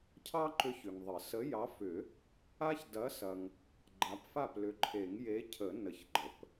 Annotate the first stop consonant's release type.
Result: aspirated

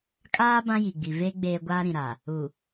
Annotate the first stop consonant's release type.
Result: ejective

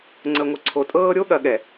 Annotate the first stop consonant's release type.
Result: click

